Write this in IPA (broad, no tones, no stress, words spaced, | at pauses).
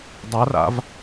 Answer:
dˤara̰v